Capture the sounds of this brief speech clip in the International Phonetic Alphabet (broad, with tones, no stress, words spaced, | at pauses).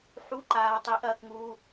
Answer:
ħu˧˥˧ǃaː˧ tˤi˨˥ʔɐː˧kŋuː˧